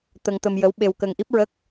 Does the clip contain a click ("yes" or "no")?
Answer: no